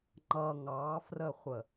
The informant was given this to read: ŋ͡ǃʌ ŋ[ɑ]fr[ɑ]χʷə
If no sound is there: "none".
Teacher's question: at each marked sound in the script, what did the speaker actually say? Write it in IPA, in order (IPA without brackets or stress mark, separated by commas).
ɑ, ə